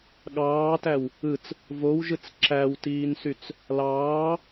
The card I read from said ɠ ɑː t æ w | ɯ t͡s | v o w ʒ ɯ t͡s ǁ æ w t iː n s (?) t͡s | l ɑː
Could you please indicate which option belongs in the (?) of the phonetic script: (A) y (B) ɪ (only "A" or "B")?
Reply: A